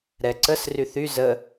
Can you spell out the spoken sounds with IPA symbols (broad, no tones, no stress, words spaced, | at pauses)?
ɾɛǀəs ryθy zə